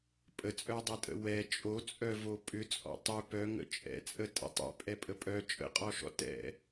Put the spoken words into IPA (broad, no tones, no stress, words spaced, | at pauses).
pʼət͡sʼœdˤɛtʼə̰ wɛ t͡ʃʼot͡sʼœvo pʼʏt͡sʼɔ̰ tˤʏ pœŋə̰ t͡ʃʼɛ̰t͡sʼə tʼə̰tˤɛ̰ pʼɛpʼəpʼœ t͡ʃʼə̰qʼɔʃɔ̰ tɛ̰